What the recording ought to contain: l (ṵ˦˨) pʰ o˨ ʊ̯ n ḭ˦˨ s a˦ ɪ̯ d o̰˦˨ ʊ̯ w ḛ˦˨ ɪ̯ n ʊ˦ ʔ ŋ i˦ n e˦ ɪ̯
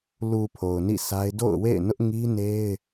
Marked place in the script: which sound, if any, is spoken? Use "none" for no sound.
u˨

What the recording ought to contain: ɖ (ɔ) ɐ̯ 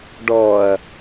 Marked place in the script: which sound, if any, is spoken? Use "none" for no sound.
ɔ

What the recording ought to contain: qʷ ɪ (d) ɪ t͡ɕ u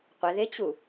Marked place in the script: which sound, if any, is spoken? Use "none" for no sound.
ð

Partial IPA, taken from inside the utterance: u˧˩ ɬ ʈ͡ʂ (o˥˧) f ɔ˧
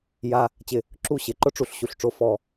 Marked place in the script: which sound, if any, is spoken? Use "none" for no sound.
o˥˧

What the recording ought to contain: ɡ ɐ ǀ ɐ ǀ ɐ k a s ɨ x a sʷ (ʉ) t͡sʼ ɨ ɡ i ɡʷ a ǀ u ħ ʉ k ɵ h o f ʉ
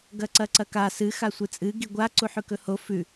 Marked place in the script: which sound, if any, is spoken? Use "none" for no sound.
ɨ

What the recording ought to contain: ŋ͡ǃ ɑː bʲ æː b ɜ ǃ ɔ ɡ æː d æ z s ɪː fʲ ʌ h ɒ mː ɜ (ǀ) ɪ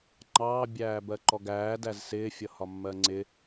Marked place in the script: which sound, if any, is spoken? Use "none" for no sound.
ŋ͡ǀ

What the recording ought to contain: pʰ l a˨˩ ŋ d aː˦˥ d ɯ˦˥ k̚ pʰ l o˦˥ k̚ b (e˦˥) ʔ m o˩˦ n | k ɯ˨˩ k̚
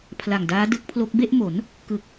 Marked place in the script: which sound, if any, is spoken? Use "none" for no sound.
e˥˩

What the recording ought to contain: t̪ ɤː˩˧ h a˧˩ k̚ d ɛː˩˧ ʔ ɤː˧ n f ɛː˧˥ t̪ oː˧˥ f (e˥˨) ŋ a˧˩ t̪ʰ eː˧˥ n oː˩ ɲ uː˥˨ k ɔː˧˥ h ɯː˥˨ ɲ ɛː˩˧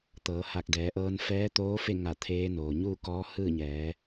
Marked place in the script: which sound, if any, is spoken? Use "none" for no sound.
e˥˨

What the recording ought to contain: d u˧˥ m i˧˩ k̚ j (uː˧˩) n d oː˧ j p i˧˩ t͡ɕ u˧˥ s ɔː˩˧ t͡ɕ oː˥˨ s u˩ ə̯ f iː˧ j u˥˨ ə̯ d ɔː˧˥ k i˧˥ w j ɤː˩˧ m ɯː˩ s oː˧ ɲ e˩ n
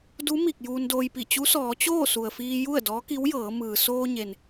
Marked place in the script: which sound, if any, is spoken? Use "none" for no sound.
uː˧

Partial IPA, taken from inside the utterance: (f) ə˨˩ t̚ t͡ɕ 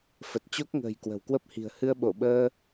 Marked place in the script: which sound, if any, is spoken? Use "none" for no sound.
f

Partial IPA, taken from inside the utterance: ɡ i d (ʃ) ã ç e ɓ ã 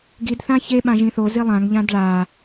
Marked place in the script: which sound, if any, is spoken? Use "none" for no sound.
θ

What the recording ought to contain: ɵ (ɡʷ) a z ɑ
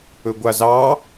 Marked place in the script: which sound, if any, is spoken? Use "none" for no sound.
ɡʷ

